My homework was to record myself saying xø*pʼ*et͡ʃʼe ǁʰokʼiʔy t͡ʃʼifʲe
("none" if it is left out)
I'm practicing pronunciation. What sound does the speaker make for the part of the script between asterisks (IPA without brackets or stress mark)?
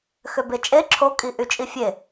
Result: b